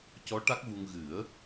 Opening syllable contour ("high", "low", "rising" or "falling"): rising